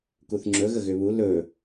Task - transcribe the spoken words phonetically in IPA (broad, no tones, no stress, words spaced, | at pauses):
kuθŋ͡ǁɵ ɣəɣʏβu lɵ